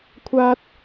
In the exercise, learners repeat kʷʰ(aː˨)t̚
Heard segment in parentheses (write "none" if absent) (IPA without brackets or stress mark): aː˥